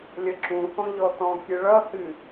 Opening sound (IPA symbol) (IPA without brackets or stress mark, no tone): lʲ